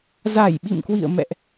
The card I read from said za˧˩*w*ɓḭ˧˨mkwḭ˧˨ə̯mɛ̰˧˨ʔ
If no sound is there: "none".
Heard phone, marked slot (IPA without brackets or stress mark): j